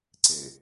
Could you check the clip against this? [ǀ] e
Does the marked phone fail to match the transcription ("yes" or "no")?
no